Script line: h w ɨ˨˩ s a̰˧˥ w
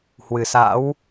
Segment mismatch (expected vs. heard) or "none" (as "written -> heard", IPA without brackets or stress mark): none